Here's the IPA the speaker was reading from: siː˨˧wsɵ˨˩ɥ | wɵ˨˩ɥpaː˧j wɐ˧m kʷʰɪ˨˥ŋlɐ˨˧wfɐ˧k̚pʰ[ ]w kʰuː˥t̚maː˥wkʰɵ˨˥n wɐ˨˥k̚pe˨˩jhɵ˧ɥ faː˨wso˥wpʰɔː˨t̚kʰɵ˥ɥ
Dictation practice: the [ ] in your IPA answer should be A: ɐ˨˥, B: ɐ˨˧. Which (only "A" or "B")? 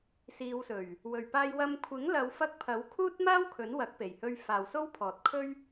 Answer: A